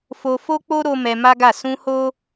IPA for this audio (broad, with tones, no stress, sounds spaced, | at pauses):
f o˧ f o˦ k͡p o˦ ɾ o˦ m ɛ˧ m a˦ ɡ a˦˨ s ũ˧ h o˦